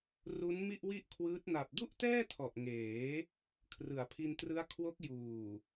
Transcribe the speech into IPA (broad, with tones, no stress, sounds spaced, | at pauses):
r u˦˥ n m i˥˩ ʔ w i˥˩ ʔ kʰ w ɯː˦˥ t̚ n a˨˩ p̚ d u˥˩ ʔ t ɛː˥˩ tʰ ɔ˨˩ ʔ ŋ eː˩˦ | kʰ r ɯ˩˦ a̯ pʰ i˧ n t r ɯ˦˥ a̯ kʰ w o˦˥ k̚ j uː˨˩